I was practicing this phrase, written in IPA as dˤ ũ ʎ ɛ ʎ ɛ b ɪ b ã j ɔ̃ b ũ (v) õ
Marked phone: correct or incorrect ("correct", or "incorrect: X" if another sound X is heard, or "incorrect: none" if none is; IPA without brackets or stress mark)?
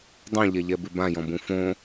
incorrect: f